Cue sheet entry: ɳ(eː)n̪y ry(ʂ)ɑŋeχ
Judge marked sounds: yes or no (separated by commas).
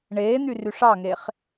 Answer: yes, yes